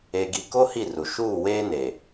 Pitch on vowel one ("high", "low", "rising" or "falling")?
low